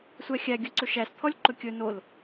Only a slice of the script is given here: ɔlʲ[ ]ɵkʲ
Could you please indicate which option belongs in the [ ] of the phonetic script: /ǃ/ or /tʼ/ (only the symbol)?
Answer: ǃ